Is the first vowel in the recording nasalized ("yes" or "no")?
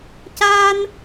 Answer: no